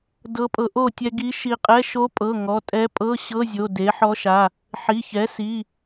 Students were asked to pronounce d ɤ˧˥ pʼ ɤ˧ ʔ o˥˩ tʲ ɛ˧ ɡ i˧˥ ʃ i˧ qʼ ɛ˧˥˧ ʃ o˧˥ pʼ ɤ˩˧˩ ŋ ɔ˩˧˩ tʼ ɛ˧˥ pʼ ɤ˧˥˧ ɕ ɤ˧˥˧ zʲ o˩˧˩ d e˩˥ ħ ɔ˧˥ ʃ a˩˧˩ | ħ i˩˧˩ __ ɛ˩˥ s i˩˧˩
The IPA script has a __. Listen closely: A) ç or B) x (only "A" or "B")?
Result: A